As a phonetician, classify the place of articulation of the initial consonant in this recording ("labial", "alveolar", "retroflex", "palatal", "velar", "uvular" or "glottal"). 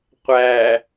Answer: uvular